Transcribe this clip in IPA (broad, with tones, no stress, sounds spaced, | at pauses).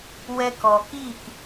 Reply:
w ɛ˧ k ɔ˨ k iː˦˨ k